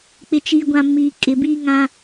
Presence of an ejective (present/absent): present